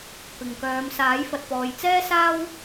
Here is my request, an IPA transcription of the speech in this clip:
pɪ˨ŋkœː˨˧m saː˨˥jfɐ˨t̚pɔː˨j t͡sɛː˥saː˥w

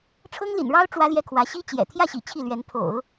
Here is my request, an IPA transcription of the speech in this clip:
ʈ͡ʂʰɤ˥ŋlḭ˨˩nɻɑ˥ʊ̯ ʈ͡ʂwä˥ljɛ˥˩kʰwä˧˥ ɕi˥ t͡ɕjɛ̰˨˩ t̪ʰjä˥˩ɕḭ˨˩ t͡ɕʰi˥˩lɥɛ˧˥n pʰo̰˨˩˦ʊ̯

